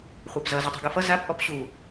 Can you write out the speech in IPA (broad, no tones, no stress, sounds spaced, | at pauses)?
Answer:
χʷ a p z ʌ z u tˤ ṳ ɡ ɯ f ʌ z a p ʔ ɔ p ɕ u